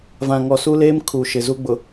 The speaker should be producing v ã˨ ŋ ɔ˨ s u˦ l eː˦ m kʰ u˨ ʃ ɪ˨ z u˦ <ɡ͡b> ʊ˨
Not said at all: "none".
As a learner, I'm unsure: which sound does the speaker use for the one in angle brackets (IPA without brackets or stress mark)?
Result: ɡ͡b